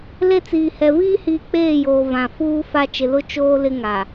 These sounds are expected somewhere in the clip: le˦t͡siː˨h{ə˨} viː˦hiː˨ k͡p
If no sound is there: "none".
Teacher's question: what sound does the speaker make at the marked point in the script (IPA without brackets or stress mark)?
ɛ˨